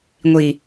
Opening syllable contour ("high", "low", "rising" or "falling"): low